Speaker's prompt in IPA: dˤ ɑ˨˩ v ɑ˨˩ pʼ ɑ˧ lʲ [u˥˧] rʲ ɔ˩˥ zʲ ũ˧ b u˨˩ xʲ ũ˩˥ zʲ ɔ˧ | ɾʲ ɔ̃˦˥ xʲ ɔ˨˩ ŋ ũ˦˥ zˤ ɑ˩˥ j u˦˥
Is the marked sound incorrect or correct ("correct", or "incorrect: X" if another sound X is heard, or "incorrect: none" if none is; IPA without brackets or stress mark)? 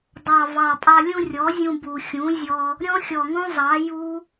incorrect: ũ˥˧